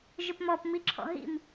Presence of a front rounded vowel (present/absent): present